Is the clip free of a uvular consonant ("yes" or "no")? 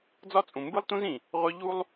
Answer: no